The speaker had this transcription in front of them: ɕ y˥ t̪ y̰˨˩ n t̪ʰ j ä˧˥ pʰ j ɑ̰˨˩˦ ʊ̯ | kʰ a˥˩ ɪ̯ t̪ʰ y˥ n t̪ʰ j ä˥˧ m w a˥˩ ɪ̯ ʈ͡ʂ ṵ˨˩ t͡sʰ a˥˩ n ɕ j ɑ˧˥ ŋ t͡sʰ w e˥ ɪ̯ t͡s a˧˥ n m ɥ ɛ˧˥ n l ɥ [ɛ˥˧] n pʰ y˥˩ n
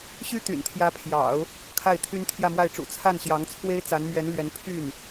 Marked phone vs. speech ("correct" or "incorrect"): incorrect